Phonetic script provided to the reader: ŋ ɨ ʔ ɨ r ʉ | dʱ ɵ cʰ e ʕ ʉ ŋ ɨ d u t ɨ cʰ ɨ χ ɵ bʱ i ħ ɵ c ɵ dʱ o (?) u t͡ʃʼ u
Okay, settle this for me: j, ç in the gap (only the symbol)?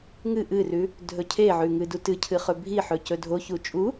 ç